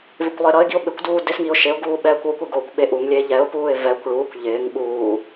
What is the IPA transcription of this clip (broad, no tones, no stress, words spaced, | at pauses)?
vɪkʷlˠɪːɾʌɪ̯ɡiʊ̯ ɓɪkʷduː dɪsŋiʊ̯ ʃɪʊ̯ɡuː ɓɛːkʷokʷɪ ɡoːkʷɓeʔuŋlʲeː ʎɛʊ̯puːɪ̯ vɛkʷ ɭuːkʷ ʎɪːŋ ɓuː